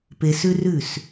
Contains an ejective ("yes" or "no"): no